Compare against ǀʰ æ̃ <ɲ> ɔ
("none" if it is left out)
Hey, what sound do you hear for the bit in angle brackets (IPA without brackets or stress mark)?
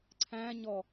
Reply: ɲ